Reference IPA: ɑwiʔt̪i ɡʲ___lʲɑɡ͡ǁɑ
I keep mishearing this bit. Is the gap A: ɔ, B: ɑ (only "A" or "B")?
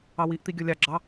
A